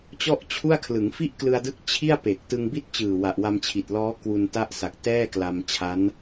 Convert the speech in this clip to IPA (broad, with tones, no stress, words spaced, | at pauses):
t͡ɕɔ˥˩ʔt͡ɕʰu˥˩a̯kʰlɯ˩˦ŋ fi˥˩ʔklɯ˧a̯dɯ˦˥k̚ t͡ɕʰi˥˩a̯pe˨˩k̚ tɯ˧ŋbi˥˩t̚t͡ɕɯː˨˩ wa˨˩ʔwa˧mt͡ɕʰi˨˩t̚lɔː˦˥ kwu˧n ta˥˩ʔsa˨˩k̚ tɛː˥˩kla˧mt͡ɕʰa˦˥n